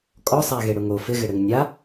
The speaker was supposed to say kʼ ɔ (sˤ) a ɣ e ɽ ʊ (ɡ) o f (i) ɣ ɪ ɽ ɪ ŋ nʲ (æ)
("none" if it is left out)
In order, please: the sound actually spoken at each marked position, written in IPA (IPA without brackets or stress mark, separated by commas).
sˤ, ŋ, ɪ, a